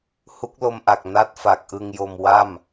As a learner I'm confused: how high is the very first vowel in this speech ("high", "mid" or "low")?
high